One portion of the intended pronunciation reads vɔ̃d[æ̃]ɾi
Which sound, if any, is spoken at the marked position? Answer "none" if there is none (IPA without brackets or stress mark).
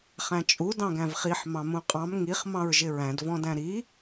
æ̃